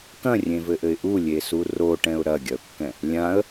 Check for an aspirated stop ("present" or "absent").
absent